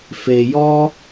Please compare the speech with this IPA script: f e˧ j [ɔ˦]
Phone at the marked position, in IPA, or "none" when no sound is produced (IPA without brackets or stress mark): ɔ˦